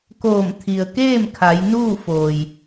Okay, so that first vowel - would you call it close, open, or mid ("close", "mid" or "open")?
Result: mid